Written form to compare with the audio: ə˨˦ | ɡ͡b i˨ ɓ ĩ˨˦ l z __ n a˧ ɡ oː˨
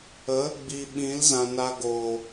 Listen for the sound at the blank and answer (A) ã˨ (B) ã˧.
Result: A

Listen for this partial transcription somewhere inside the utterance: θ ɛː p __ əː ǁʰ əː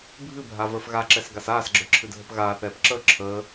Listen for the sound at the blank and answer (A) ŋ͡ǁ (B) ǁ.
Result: B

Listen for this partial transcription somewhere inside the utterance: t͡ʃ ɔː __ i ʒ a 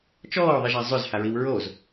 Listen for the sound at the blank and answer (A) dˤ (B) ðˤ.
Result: B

